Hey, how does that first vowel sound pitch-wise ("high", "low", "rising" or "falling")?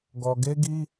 low